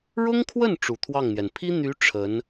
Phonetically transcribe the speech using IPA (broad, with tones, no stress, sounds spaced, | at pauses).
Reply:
ɻ ʊ˥ ŋ kʰ w ə˥˩ n ʈ͡ʂ u˨˩ t̪ʰ w ɑ˥˩ ŋ n̪ j ɛ˩ n pʰ i˥ n̪ y˧˥ ʈ͡ʂʰ ə˧˥ n